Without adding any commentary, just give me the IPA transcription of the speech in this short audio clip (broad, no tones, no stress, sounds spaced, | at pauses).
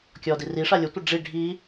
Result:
kʲ ɔ d i r i ʂ a lʲ ə tʷ ə ɖ͡ʐ i ɖʱ i